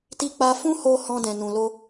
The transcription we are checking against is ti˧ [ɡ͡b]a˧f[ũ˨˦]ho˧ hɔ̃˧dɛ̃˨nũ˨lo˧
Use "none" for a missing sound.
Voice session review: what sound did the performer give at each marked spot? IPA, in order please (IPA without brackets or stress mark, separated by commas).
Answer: k͡p, ũ˦